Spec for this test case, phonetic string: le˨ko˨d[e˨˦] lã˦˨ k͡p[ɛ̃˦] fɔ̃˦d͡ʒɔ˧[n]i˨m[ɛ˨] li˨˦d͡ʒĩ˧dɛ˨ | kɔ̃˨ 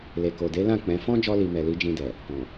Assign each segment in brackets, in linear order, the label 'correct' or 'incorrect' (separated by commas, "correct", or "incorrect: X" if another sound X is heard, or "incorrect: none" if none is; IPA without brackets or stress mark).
correct, incorrect: ɛ̃˨˦, incorrect: l, correct